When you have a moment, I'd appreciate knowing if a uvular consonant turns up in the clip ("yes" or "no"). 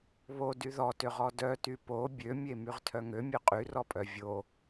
yes